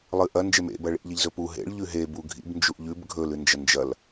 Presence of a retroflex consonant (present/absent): present